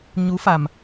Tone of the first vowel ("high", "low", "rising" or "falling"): rising